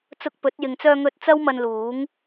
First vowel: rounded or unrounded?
rounded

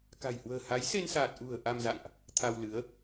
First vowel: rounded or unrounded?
unrounded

